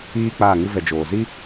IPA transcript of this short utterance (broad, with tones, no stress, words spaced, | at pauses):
iː˦k͡paː˦˨ŋɨ˦ vɛ˨d͡ʒoː˨zi˦